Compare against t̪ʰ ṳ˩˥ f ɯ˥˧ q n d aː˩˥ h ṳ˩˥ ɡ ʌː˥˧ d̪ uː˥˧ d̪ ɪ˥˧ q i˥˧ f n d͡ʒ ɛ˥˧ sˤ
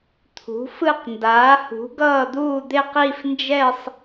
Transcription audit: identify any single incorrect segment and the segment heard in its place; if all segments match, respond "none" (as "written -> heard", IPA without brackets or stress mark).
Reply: none